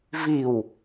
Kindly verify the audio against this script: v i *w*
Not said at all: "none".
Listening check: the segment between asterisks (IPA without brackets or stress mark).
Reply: w